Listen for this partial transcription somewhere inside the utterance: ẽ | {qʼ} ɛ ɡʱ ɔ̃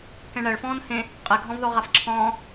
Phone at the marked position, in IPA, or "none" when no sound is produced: qʼ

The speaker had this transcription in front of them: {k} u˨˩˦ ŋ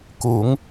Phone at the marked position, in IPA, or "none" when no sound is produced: k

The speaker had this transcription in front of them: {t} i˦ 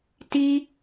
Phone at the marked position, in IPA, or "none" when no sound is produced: t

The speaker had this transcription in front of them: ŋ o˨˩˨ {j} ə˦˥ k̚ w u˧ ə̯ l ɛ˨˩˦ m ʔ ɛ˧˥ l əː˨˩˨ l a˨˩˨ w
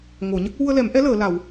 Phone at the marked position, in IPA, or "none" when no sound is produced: ɲ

